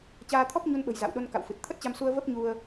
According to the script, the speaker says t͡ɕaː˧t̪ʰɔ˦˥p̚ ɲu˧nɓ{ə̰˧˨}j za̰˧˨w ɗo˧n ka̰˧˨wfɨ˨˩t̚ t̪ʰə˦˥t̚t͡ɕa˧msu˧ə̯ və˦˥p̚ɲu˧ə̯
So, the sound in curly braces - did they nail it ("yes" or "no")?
no